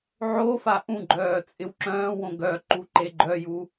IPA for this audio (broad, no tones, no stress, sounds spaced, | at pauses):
ʕ o f a ʔ ũ ɡ͡ǃ œː t͡sʼ ɪ w ǁ œ̃ː w õ ɡ œ ǃ u ǃ e ɡ͡ǃ œ j u